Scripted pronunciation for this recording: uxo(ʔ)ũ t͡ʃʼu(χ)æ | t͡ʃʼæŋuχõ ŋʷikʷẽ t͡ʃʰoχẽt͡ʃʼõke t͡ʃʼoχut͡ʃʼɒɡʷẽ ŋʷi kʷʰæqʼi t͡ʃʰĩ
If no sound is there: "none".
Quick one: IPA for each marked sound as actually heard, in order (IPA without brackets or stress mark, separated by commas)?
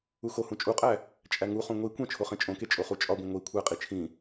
h, qʼ